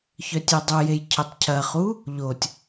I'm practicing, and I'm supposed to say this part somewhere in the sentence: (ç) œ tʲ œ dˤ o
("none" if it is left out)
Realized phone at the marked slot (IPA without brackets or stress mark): ç